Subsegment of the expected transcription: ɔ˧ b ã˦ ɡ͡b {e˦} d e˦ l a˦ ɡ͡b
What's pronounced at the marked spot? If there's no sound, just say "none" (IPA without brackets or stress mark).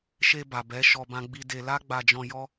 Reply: i˦